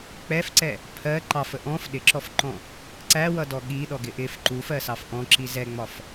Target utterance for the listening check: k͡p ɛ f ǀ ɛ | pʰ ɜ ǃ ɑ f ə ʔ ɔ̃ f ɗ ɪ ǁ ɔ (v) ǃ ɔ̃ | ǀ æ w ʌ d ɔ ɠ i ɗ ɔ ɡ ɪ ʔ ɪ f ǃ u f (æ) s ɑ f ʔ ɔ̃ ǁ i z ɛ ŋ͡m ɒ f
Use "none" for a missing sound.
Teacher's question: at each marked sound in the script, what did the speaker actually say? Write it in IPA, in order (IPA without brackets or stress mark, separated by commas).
f, ɜ